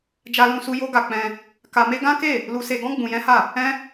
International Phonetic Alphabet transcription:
d͡ʒa˦lũ˦su˦ jo˦ɡa˧k͡pɛ̃˧ | ka˧me˦ ɡã˦ke˦˨ | lu˧se˧ɡɔ̃˦ ɡ͡bũ˧jɛ̃˦ha˦˨ | ɛ̃˦

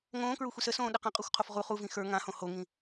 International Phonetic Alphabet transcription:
ŋõːkɹuxʷis əsõː ɗəqãqʼoxʷqʰof ʁu χuvĩ xə˞ ŋãhõ hoŋĩ

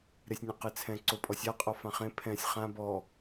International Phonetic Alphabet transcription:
ɾesʲnʲãqet͡sʰɛ̃ ǀopʼɔsʲa qʼɔfãχẽ pʰɛ̃sʲ χã bɔ

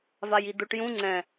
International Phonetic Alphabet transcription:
vajid̪oʈ jũ ŋ͡ǀɛ̃

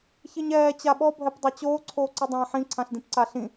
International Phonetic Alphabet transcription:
çiɲɛː t͡ɕaɓɔ bʱɛpdˤat͡ɕoː ǀʰoːǀɨdˤãːħĩ ǀʰãɬdĩpǀaɬĩ

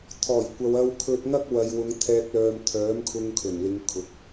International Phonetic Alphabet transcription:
t̪ʰɔː˨˩jkʷɐ˨w ɐ˧wkʰɵ˧t̚ŋɐ˥k̚ wɐ˨jwʊ˨˧ŋ t̪ʰɛː˨k̚lœː˨m t̪ʰœː˨˥mkʰʊ˧ŋ kʰɵ˨˩nlɪ˨˧ŋkʰʊ˨˥k̚

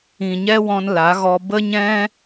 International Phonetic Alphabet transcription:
ĩ˨ɲɛ˦wɔ̃˧n la˨˦ɣɔ˧ bə˦ɲɛ̃˦

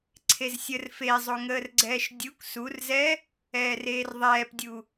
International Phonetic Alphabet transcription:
ǀʰezsʲər fezˤo ŋəːrɡ͡ǀɛːʃdʲuk surzɛ | ɛːreːrðˤɛːpdʲu

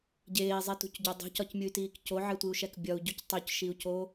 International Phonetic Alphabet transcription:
ɟeːi̯zˤitṳcɟo dˤṳcɒcmʲuy̯tiːk coʕetʷiu̯ʃæk bʲɒu̯ɟuc tˤocʃiu̯co

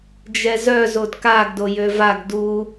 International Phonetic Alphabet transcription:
d͡ʒɛzœ zodkaɡ dojøvaɡ du

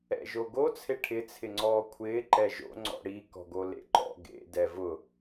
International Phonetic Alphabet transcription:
ɛ̰ʒoɡo t͡sʰeʈʰɪ t͡sʰɪŋ͡ǀɔːkʷʰɪː ǃɛʒo̰ ŋ͡ǀɔ̰ɽi kɔ̤ɡolḛǃɔ̰ ɡḛ dɛvʊ

